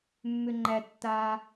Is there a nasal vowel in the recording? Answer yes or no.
no